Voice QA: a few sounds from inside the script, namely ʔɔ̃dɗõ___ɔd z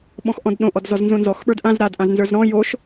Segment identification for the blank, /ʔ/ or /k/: ʔ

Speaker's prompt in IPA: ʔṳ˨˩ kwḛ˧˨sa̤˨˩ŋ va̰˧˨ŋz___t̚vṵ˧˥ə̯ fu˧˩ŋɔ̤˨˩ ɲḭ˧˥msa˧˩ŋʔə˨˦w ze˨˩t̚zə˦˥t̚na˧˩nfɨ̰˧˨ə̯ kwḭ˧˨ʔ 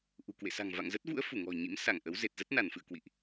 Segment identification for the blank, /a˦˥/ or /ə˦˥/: ə˦˥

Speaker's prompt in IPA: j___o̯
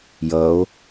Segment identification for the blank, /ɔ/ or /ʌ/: ʌ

